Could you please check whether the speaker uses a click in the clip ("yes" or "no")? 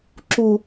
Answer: yes